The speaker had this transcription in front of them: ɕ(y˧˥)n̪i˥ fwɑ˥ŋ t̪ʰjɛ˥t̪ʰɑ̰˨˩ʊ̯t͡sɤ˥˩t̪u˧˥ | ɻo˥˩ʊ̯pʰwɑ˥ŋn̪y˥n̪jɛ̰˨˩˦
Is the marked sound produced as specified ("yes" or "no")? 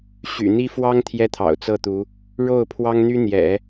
no